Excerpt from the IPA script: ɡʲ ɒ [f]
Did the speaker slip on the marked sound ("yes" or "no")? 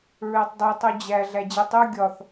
yes